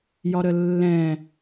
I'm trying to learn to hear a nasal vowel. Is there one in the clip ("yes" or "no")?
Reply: yes